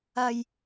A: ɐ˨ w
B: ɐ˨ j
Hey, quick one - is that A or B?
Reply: B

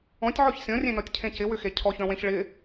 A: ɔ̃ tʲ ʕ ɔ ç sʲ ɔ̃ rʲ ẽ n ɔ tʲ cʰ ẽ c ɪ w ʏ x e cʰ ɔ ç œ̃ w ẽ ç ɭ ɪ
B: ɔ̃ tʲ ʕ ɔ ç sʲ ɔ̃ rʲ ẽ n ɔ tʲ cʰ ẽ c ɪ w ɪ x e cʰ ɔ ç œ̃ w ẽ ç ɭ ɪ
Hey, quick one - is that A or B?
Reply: A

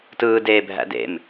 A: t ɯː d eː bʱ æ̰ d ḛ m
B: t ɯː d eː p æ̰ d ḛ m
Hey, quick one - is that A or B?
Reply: A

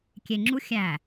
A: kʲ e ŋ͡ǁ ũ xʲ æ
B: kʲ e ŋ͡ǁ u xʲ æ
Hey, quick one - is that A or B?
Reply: B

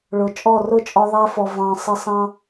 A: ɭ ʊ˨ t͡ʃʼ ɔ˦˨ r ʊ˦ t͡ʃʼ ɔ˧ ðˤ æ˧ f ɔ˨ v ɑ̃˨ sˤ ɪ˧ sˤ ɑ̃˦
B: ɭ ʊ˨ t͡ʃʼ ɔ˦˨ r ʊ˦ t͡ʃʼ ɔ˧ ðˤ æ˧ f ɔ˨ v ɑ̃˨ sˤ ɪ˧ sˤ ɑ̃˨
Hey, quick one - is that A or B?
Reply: A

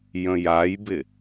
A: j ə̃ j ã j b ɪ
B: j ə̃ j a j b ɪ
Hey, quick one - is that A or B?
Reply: B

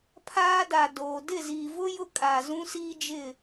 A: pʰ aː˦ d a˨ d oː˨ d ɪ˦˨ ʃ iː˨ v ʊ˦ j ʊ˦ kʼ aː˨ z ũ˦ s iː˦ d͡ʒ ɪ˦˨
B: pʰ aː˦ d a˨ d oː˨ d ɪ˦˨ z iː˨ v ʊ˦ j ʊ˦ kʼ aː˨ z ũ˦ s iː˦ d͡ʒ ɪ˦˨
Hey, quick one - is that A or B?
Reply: B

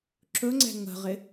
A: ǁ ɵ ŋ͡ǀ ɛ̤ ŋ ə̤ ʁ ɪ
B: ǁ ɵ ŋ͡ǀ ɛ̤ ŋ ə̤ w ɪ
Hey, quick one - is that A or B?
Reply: A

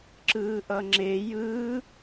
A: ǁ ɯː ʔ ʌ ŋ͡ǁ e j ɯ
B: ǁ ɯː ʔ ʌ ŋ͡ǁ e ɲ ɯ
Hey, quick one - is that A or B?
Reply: A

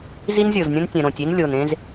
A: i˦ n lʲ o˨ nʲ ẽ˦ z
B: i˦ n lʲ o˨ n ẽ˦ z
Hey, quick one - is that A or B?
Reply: B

